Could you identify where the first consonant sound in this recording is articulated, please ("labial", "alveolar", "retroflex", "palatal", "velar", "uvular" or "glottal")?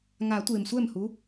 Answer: velar